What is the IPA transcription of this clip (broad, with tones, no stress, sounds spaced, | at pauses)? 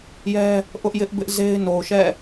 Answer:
j ɛ˦ | ʔ ʊ˦ ʔ j ɪ˦ ʔ b ɪ˦ ʔ z e˦ ɪ̯ n o˨ ʊ̯ ʃ ɛ̰˦˨